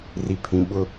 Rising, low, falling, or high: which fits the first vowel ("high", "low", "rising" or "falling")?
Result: low